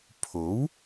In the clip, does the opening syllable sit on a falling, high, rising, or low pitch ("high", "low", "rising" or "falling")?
rising